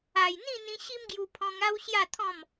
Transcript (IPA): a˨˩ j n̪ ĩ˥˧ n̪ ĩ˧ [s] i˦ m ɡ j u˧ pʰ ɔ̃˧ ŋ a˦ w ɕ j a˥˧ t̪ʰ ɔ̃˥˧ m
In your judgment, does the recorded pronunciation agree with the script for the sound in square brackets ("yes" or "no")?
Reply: no